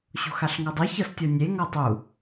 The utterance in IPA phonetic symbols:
ɕo̤xaɬŋɔdˤɤ çɤstʲɤnʲe ŋɔtˤu

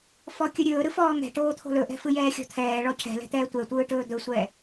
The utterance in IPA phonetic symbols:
fɔkʲɯɾʲɵː ɾɯfɔːŋɛ̤ʈoː t̪ʰo̤lɵʔɛ̤fɯ jɛːxʲɔ̤t̪ʰɛː ɭɔcʰɛ̤lɛ̤t̪ɛː tʷɛtʷɯːʈɵː d̪ɵsʷɛː

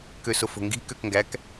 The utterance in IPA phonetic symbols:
køsofo̤ŋɡi̤ køkŋɡæk

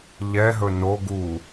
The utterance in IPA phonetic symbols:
ʎɛɦɵ no ɡu

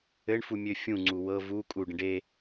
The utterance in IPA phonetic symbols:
ɘɳfumʲø fʲũŋ͡ǀu wɤ vu kʼuɖə̃ ɖe

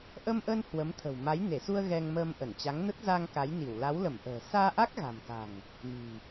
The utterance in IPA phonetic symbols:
ʔə˧mʔə˧n hwə˨˦mt̪ʰə̤˨˩w ma˨˦jne˧˩su˧ə̯ ɣɛ˧ŋməː˧mʔə˧˩n t͡ɕa˨˦ŋnə˦˥t̚za˧ŋ ka˨˦jni˧˩w la˨˦wlə˧˩mʔə̤ː˨˩ saː˧ʔa˦˥k̚ɣa̤˨˩mka̤˨˩ŋ | mi̤˨˩

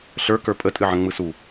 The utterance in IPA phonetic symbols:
ɬə˞kə˞ pʼətʼɨʕə̃ ŋ͡mɯsu

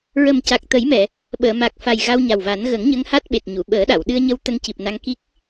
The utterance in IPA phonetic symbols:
ɹə˨˩mca˨˩k̚t̪ə˨˩˦jmɛ˨˩˨ | ɓəː˨˩˨ma˨˩k̚fa˨˩j ɣa˧wɲa˨˩wva˨˩˦n ɣə˨˩˦ŋɲə˧ŋ ha˦˥t̚ɓe˨˩t̚ɲu˨˩˨ ɓəː˨˩˦ɗa˨˩˨w ɗɨ˧ə̯ɲə˧w t̪ə˧ŋci˨˩p̚na˧ŋ ki˦˥k̚

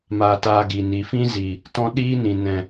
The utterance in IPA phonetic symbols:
maː˧taː˧ ɡi˨ni˨ fĩ˦ziː˨ | tɔ̃˦ɗiː˦nĩ˨ nɛ̃˨

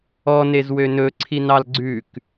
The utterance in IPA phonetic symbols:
ɔnezwø nɵǀʰinɑl ɡ͡ǀʉk

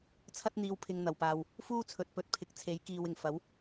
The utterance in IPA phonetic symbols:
t͡sʰɐ˥t̚n̪iː˧w pʰɪ˨ŋ n̪ɐ˨˩wpaː˨w | fuː˥t͡sʰɵ˨t̚pɵ˨t̚pʰɪ˨˥k̚ t͡sʰe˨˥jkiː˨wɪ˨˩ŋ fɐ˨˥w

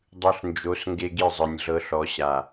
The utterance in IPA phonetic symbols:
dˤɯ˨ɬnd͡ʒo˨˦s ŋɡe˦ɡi˦˨zˤɯ˨nʲɮɤ˦ ɬɔ˨˦ɕa˨

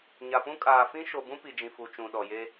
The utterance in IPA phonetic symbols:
ɲa˨pũ˦ kʼaː˨ fĩ˦ʃo˨ bũ˦pi˨d͡ʒĩ˨fu˨ t͡ʃũ˨ɗɔ˨je˦

